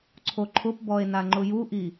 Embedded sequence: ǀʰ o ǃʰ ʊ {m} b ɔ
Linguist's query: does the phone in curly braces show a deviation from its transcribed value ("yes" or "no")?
yes